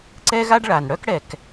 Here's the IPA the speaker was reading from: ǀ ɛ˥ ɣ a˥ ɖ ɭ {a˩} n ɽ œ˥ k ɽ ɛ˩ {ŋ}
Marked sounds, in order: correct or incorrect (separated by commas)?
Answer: correct, incorrect